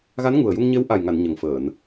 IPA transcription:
ɣ a˧˥ n ŋ u˨˩ ə̯ j u˧ ŋ ɲ e˧˥ w ʔ a˨˩ j ŋ a˨˩˨ n ɲ ə˨˩ ŋ f əː˨˩˨ n

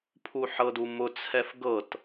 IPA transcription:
pʰ u ħ ɤ d u m ʊ t͡sʰ ɛ f ɡ ɤ t

